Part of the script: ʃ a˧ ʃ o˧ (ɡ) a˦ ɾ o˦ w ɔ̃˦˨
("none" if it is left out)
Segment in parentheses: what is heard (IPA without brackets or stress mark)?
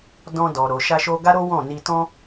ɡ